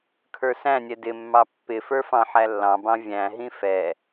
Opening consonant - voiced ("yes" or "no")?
no